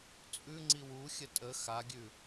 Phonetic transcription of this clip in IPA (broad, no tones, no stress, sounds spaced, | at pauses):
t͡sʼ ʉ ŋ͡ǀ i w u xʲ ə tʼ ə x a ɡʲ ʉ